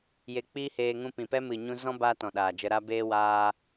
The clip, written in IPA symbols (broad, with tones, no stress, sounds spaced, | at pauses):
j e˧ k͡p iː˦ h eː˧ ŋ ũ˧ p ĩ˨ p ɛ˦ m ɨ˨ ɲ ũ˧ z ɔ̃˦ b aː˦ t ɔ̃˨ ɗ aː˨ d͡ʒ ə˧ ɾ a˧ b eː˧ w aː˧